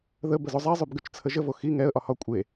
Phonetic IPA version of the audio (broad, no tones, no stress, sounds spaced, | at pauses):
ð ə b ə z o zˤ ɛ zˤ ʉ b ɡ ʉ t͡ʃ t͡sʰ ə ʒ ə v o x i ŋ ɛ ə̯ ʔ ɒ h ɒ kʷʼ e